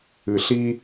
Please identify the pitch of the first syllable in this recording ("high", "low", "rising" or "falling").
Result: low